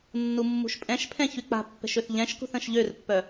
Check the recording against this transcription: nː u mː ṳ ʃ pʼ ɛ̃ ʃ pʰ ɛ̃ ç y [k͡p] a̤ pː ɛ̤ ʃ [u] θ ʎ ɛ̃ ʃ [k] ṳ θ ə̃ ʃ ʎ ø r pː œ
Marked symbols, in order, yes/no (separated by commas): yes, no, yes